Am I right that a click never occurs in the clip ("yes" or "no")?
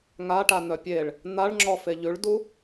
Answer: no